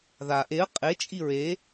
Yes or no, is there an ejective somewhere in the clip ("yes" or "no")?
yes